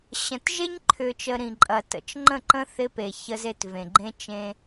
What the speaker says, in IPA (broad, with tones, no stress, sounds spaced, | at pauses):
ɕ ə̃˨ t ʒ e˦ ɲ ǃʰ ʏ˨ t͡ʃ ə˨ ɾ ĩ˨ ǃʼ ɐ˨ t ə̰˨ t͡ʃ ŋ͡ǃ ə̃˦˨ ǃ ə̃˦ θ ɪ˦ p e˨ ç ə˦ z e˦ t v ẽ˨ ɡ͡ǃ ẽ˦ t͡ʃ ẽ˦